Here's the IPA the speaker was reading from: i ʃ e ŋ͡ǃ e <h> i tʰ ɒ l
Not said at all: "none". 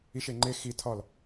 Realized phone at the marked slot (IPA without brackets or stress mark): x